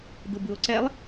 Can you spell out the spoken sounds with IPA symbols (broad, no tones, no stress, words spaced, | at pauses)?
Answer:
d̪ɯbɯo̯ǀɛlˠ